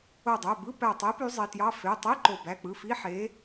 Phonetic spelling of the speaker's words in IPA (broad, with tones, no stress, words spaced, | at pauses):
o˧˩dˤø˩˧˩bɯ˧˥˧ pæ˧˩tˤi˨˥ py˨˥zˤe˩˧˩tjɑ˧˥˧ fe˩˧˩tˤi˧˥˧ ǃo˧˩ bæ˩˧˩k͡pɯ˩˧˩fi˧˥˧ ħe˨˥